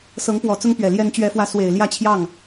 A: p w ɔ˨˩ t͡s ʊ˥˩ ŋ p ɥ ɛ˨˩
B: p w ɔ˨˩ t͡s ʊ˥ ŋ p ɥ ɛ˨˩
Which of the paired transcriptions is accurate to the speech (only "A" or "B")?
B